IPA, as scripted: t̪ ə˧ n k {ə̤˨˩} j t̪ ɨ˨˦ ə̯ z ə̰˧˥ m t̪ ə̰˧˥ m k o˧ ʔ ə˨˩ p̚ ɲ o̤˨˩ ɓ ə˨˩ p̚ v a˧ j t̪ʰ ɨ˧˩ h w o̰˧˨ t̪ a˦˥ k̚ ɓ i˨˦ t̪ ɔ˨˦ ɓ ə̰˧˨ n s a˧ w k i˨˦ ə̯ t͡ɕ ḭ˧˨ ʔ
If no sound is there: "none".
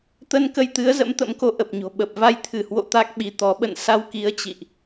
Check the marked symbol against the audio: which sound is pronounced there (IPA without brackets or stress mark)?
ə˧